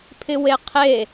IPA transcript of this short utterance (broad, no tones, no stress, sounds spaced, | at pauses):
pʰ ɪ w e qʰ e